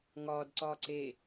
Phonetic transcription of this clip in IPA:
ŋ ɒː d ǀ ɒː ǀ e

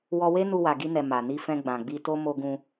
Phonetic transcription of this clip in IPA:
w ɔ˧ w e˦ n u˧ w a˨ ɡ i˧ n ɛ˨ m a˨ n i˧ f ɛ̃˧ ɡ͡b ã˨ ɡ͡b i˧ t o˦ m o˧ ɡ ũ˧

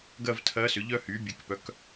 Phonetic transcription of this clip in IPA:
ɡ ɜ˥˧ v tʰ ɜ˧˥ s ʏ˩˥ ʎ œ˥ h y˩˥ bʲ e˩˥ k p œ˩˥ k

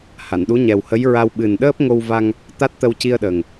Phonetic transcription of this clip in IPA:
h a˨˩˨ n ɗ u˧˥ ɲ ɛ˨˩ w h ə˧˥ j ɹ a˧ w ɓ ɨ˨˩ n ɗ əː˦˥ p̚ ŋ o˧ w v a˧ ŋ | t̪ a˦˥ t̚ t̪ ə˧ w c i˧ ə̯ ɗ ə˨˩ ŋ

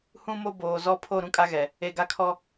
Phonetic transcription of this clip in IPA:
h ũ˦ m o˦ b oː˨ z ɔ˦ pʰ o˦˨ ɾ ũ˦ kʼ a˦ ɣ ɛ˨ | e˨ ɡ a˦ kʰ ɔ˦

